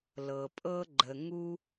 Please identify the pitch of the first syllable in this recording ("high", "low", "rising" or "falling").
low